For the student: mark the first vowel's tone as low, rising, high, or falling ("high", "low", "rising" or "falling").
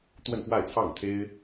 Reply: falling